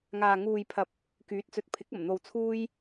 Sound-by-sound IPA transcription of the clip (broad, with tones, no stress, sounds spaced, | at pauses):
ŋ aː˨ ŋ uː˨ j pʰ ɐ˨˥ p̚ | k yː˨˥ t̚ t͡s ɵ˨ t̚ pʰ ɪ˨˥ k̚ ɐ˨˩ m n̪ o˨ w t͡sʰ uː˧ j